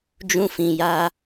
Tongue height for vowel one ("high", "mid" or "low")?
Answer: high